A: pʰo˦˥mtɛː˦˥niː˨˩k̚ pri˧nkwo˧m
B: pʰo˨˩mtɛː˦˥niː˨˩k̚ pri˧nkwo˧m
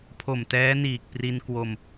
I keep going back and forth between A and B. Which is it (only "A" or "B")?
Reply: B